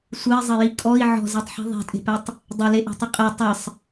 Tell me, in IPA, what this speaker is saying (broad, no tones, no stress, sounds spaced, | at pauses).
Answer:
sʷ ɘ i̯ zˤ ɘ j i kʼ ɔ i̯ ʕ ɔ̤ z e tˤ ħ i̤ ðˤ e̤ tʼ e̤ p ɛ tˤ | dˤ ɪ l e ʔ ɔ̤ tˤ ɪ qʼ ɘ tˤ ɘ sˤ